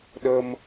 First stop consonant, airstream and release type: implosive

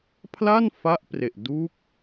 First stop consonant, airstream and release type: aspirated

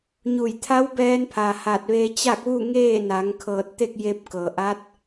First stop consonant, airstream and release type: aspirated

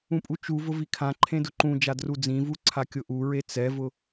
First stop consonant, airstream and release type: ejective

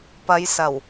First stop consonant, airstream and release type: plain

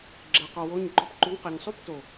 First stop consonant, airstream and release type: click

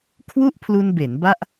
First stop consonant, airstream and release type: aspirated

